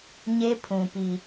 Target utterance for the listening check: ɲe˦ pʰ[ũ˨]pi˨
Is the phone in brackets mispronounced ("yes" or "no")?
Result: no